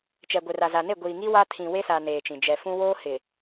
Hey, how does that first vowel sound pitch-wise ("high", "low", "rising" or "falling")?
low